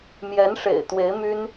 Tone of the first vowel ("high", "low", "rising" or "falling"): rising